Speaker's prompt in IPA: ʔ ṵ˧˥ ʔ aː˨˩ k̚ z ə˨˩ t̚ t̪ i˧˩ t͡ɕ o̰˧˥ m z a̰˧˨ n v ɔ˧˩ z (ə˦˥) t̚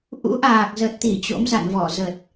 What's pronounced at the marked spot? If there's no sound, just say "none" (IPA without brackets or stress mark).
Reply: ə˨˩